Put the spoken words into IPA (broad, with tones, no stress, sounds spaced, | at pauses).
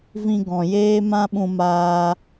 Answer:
v ĩ˧ ɡ ɔ̃˨ j eː˦ m ã˦ ɓ ũ˧ m aː˧